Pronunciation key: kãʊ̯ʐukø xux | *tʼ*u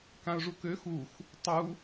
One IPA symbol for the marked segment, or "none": tˤ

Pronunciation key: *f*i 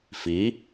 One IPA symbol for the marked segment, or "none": f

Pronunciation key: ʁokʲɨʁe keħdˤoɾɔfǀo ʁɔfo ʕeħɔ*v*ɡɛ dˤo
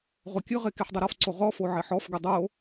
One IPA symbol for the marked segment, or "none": f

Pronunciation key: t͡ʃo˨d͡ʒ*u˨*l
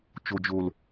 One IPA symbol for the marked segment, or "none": o˨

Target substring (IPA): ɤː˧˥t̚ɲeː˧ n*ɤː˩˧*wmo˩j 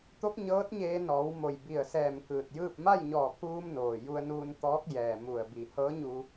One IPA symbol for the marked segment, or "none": ɔː˩˧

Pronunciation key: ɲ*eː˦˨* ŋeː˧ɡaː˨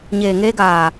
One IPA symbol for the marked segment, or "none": eː˨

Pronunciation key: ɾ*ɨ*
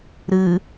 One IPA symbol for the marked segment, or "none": ɨ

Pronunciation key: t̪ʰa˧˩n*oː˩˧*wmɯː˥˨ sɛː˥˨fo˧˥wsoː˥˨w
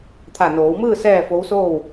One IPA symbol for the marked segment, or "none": oː˩˧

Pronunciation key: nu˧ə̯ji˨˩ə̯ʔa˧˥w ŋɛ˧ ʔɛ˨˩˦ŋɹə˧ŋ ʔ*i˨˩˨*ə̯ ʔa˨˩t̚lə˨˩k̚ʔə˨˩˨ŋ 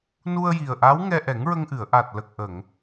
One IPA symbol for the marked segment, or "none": ɨ˨˩˨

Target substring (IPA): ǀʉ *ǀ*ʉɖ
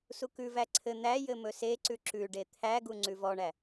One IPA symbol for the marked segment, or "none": ǁ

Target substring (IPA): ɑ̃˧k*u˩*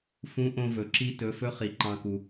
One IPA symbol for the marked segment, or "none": u˩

